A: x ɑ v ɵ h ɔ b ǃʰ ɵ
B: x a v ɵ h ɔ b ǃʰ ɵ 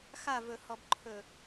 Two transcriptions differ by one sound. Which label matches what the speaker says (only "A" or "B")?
B